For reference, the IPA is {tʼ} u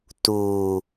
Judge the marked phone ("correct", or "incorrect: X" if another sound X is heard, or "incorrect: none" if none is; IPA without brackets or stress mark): incorrect: t